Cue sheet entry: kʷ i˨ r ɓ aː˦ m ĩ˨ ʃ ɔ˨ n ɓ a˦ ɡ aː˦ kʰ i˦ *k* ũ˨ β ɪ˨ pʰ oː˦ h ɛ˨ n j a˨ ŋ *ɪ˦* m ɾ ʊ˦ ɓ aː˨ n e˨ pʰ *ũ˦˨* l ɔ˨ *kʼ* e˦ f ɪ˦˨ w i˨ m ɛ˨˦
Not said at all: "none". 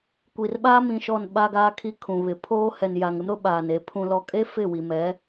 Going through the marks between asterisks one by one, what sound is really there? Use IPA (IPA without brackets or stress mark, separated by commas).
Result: kʰ, ɪ˦, ũ˨, kʼ